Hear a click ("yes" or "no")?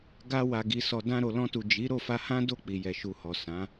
no